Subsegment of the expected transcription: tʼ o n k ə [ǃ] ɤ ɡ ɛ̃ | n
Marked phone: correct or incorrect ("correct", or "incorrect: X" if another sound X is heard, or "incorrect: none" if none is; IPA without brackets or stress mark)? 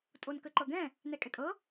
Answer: correct